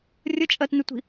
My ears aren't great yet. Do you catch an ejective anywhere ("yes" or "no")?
yes